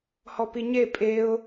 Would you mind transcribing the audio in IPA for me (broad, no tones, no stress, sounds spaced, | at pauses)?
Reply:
h ɔ p i ɲ e pʼ e ʊ̯